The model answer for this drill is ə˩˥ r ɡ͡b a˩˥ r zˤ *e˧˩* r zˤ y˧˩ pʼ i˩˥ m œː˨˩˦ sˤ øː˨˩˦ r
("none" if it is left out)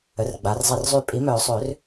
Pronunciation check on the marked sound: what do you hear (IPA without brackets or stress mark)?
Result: e˧˩